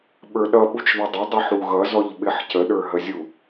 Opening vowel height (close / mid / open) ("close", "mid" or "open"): mid